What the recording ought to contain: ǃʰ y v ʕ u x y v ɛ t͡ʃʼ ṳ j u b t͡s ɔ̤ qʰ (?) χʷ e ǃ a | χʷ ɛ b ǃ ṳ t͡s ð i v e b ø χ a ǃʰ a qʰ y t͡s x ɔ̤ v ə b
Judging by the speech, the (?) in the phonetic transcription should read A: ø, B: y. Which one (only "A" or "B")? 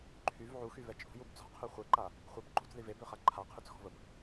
B